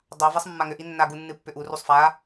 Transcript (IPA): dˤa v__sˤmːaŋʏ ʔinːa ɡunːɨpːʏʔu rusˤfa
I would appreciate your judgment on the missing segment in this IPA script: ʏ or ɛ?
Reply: ɛ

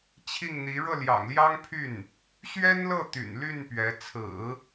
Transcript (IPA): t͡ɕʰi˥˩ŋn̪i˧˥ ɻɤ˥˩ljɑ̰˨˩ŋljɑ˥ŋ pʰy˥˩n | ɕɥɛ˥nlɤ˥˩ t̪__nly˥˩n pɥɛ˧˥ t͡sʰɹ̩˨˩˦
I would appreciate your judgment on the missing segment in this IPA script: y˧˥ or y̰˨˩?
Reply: y̰˨˩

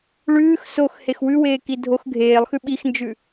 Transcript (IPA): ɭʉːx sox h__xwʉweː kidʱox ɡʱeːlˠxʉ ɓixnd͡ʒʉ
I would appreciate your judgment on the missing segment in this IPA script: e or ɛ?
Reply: e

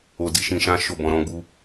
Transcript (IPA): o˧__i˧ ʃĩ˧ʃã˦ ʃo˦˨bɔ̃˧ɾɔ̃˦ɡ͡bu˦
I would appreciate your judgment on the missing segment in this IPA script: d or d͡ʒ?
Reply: d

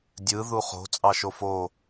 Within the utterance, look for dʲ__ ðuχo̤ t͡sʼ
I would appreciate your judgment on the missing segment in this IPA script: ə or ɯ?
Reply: ɯ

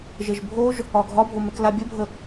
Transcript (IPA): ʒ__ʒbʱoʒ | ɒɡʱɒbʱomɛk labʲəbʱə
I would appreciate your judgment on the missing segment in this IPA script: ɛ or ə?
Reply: ə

